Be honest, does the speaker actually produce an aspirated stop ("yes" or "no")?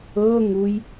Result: no